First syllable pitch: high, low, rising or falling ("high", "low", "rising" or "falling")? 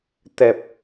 low